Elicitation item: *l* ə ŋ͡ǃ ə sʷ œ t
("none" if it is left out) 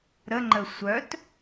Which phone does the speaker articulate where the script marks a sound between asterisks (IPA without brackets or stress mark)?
ɾ